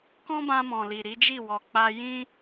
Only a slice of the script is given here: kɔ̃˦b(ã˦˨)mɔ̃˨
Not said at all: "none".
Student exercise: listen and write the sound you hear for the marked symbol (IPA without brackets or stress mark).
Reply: ã˧